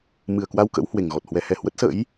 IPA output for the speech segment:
mɨ˨˩ə̯kwa˧w kə̰˧˥whwe˨˩ŋɣɔ˨˩t̚hwɛ˨˦ hɛ˨˩hwə˦˥t̚ sə̰˧˥j

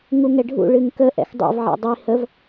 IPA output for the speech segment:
ŋuŋɛɖʱṵ ɭɨŋkə ʔɛ̰xdˤɛ̰v ʕɛ̰dˤi həv

